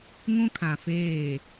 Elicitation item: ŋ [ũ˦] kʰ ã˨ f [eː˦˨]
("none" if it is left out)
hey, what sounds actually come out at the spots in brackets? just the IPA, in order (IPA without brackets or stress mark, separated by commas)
ũ˦, eː˦˨